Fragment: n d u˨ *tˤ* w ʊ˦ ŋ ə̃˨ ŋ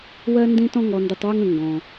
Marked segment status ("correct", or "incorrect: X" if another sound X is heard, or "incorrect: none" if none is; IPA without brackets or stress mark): correct